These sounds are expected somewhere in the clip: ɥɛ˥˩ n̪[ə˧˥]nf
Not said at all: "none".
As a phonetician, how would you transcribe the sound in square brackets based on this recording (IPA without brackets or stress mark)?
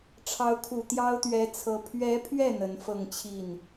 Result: ə˧˥